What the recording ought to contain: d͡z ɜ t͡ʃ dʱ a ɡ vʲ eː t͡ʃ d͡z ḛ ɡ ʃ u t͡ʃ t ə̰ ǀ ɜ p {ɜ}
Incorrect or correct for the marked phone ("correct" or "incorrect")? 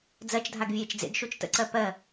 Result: correct